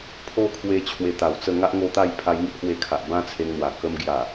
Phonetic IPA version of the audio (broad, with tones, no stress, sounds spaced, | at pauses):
pʰ o˦ kʰ w e˧ t͡ɕʰ w e˧ t̪ a˨˩ w t͡s ə˥˧ ŋ a˦ ʔ ŋ o˧ t̪ a˥˧ j pʰ a˧ j ŋ i˦ ʔ h w e˧ kʰ a˨ ʔ b ã˦ t͡sʰ e˧ ŋ n̪ w a˨˩ k ə˧ m ɡ j a˨˩